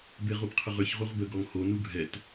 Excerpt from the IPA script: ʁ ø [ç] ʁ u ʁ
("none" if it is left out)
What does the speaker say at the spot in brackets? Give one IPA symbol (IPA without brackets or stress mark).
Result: ç